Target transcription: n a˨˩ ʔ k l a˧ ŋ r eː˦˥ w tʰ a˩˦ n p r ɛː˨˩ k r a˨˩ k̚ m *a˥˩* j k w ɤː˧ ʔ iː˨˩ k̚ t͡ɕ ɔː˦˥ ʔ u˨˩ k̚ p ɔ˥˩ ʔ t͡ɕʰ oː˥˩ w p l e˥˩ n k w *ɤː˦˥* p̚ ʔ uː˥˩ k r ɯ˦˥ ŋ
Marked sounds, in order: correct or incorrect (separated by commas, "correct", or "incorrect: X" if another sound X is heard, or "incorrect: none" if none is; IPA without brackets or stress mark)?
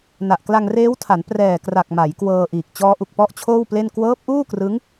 incorrect: a˩˦, correct